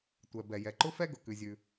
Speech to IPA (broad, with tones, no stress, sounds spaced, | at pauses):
tʷ ɛ˩ b ɛ˩ j ɛ˩ ǃ ʊ˥ f ɛ˥ ɡ ʊ˩ k ʉ˩ zʲ ʉ˩